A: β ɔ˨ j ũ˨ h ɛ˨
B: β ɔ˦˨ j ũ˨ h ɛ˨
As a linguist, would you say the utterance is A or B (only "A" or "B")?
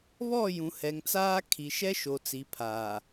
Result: B